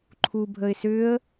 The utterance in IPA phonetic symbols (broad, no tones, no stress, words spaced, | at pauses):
ǃʰubʱəɪ̯sʏːə̯